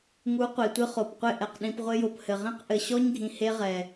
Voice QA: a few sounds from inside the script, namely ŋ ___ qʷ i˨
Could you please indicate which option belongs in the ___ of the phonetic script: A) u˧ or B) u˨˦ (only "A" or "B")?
B